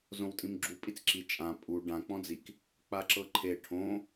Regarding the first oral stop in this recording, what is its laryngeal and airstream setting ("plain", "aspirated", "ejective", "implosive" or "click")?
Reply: ejective